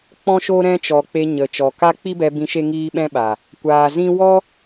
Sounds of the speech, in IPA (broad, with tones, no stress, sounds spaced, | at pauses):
k͡p ɔ̃˦ ʃ o˦ ɾ ɛ̃˦ t͡ʃ ɔ˨ k͡p e˧ ɲ ə˨ t͡ʃ ɔ˨ k a˦ k͡p i˦ b ɛ˧ b ĩ˧ ʃ e˦ ŋ iː˦ ɓ ɛ̃˦ ɓ a˨ | kʷ aː˨ z ĩ˦ w ɔ˦